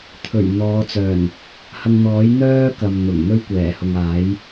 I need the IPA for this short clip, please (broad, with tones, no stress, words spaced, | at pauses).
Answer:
t̪ʰɵ˨˩ɥn̪ɔː˨˧t͡sœː˨˩n | hɐ˧ŋn̪ɔː˨˥j n̪œː˥kɐ˨mn̪ʊ˨˩ŋ n̪ɵ˥ɥkʷɛː˨˩hʊ˨ŋaː˨˥j